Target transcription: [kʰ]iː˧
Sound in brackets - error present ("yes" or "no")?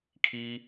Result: no